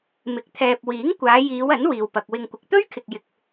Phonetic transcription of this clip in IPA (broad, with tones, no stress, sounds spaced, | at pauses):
m ɪ˧ k̚ t̪ʰ ɛː˧ p̚ w iː˨˥ ŋ kʷ aː˨˧ j iː˨˧ w ɐ˨˥ n w iː˨ w p ɐ˨ k̚ w ɪ˧ ŋ kʷ ɪ˨ k̚ t̪ ɵ˥ ɥ kʰ ɪ˨ k̚ j ɪ˨ k̚